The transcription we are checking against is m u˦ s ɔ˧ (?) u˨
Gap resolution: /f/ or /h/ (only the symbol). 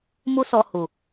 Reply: h